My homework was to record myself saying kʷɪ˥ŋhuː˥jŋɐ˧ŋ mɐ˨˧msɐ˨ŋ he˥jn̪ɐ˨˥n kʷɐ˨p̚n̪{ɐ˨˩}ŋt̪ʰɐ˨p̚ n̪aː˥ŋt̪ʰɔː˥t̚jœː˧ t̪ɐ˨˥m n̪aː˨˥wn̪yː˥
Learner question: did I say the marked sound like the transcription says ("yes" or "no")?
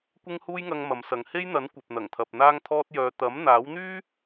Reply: yes